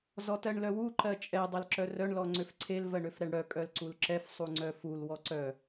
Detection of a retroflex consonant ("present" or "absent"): present